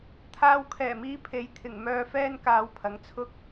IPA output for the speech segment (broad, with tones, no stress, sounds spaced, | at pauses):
t̪ʰ aː˧ w kʰ ɛː˨˩ m iː˧ pʰ e˨˧ j t̪ʰ ɪ˨˩ ŋ m œː˧ f ɛː˥ n k aː˧ w pʰ ɐ˨˥ ŋ t͡sʰ ʊ˥ k̚